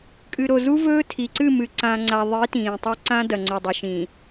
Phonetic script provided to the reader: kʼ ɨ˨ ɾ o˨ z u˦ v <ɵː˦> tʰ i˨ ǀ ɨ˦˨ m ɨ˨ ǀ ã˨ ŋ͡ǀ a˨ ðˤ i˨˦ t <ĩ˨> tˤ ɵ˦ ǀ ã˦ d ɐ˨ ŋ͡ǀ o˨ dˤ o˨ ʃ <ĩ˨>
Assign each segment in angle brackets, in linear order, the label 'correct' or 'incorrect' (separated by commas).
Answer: correct, incorrect, incorrect